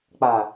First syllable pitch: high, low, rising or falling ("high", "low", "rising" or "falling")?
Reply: low